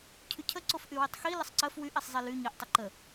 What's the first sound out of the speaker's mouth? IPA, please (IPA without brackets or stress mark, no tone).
cʰ